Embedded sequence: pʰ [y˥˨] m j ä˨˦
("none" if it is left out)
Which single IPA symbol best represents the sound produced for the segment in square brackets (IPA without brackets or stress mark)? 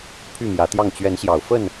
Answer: y˥˨